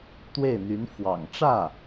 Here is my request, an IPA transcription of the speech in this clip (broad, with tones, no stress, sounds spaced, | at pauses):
t̪ w e˥˩ ɪ̯ n̪ y˧˥ n f w ɑ̰˨˩ ŋ ʈ͡ʂ ä˥˩